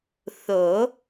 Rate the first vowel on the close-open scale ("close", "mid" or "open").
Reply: mid